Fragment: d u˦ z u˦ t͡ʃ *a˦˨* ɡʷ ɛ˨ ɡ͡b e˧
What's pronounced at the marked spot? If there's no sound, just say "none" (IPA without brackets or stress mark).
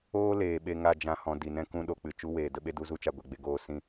a˧